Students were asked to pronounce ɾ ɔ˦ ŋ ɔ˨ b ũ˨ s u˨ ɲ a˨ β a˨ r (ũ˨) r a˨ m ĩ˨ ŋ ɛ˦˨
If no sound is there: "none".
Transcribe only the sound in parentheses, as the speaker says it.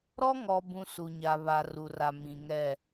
u˨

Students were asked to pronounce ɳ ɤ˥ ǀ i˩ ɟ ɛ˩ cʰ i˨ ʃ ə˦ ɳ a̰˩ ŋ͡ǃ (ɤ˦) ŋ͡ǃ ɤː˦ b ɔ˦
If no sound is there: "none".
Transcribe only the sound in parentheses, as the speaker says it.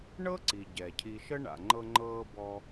ɤ˦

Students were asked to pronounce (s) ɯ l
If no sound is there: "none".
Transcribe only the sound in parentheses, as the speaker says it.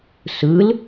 s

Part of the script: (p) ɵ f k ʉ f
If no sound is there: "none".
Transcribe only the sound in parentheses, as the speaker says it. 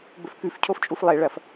b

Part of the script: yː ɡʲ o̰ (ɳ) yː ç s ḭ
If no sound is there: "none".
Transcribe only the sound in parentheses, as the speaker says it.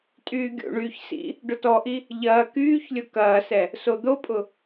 ɳ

